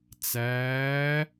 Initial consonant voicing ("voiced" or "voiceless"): voiceless